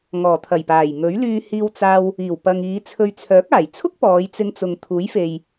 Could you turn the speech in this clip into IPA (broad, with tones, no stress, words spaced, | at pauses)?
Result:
ŋɔː˨˩t̪ʰɐ˨˩jpaː˨˩j ŋɵ˨˥ɥlyː˧ hiː˧wt͡saː˧w | iː˨˩wpɐ˨ŋ iː˨˧t͡sʰɵ˧ɥ t͡sʰœː˨˥k̚aː˨˩jt͡sʰʊ˥k̚ pɔː˨˧jt͡sɪ˧ŋt͡sʊ˨ŋ t̪ʰuː˨˥jfe˨j